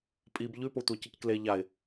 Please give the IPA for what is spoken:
pʼ i b ʎ ʉ p o tʷ a c ɨ c k l e ʎ a ɪ̯

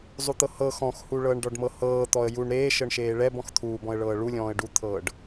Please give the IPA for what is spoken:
zˤ u t̪ ɤ h ɤ x ɔ̃ x h u ɭ ɤː ɳ ɖ ɔ ɖ m ɤ h ɤː t̪ ɔ ə̯ j u ɳ ɾ eː ʃ ɤ ɳ ʃ eː ɭ ɛ b ɔ̃ x t̪ʰ uː b ɔ̃ ə̯ ɭ ɤː ɭ u lʲ ɔ̃ː ə̯ ɖ u t̪ʰ ɤː ɖ

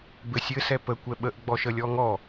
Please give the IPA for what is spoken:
b ɘ sʲ ɘ s ɛ p ə kʷ ɛ ɓ ə ʔ ɡ͡b ɔ ʃ ə lʲ ɔ ŋ ɔ

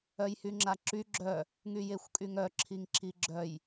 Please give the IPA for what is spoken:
œ j h y ŋ͡ǁ a ǁ y ɡ͡ǁ œ | ŋ y j e xʷ kʼ y ŋ œ ǁʰ i ŋ ǁ i ɡ͡ǁ œ j

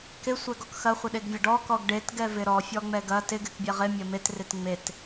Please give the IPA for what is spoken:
k ɪ sʷ ɛ ɡ ɔ k x ɐ χʷ ɪ ɗ e ɡ vʲ ɐ ɖ ɔ k ɔ ɡ ɖ e t ɡ ɛ v ɪ ɾ ɔ fʲ ɔ ŋ͡m ɛ ɡ ɐ t ɪ ɡ ɪ k bʲ ɛ ʁ ɪ mʲ ɐ m e t r ɪ t ŋ͡m e t

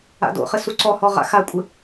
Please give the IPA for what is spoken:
a̰ d o̰ χ ɘ s u ǀ ɔ h ɔ ʁ a̰ x a kʷʼ ɘ

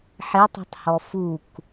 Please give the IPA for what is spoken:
ħ e tˤ ṳ tˤ h ɔ f u k

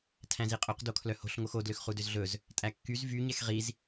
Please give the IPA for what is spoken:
tʰ æ̃ z i qʼ ɵ q d o kʰ l œ h o̤ ɬ ŋ o x o d l ø x χ u d ø z ɮ ɵ z | tʼ æ kː y z v y ɲ ɛ x ʁ i z

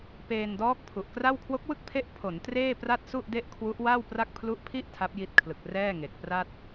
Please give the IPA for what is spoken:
p eː˧ n d ɔː˦˥ k̚ pʰ u˨˩ ʔ k r a˥˩ w kʰ w o˦˥ k̚ w ɯ˥˩ k̚ pʰ e˦˥ ʔ pʰ o˩˦ n t r eː˥˩ p r a˥˩ t̚ s u˥˩ ʔ d e˥˩ ʔ kʰ w u˦˥ ʔ w a˥˩ w p r a˥˩ k̚ pʰ l u˦˥ ʔ pʰ i˥˩ ʔ tʰ a˦˥ p̚ j i˦˥ t̚ kʰ l ɯ˨˩ k̚ r ɛː˥˩ ŋ e˨˩ k̚ p r a˥˩ t̚

